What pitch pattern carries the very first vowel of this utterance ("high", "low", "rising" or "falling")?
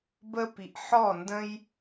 high